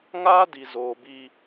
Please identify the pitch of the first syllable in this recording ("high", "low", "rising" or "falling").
high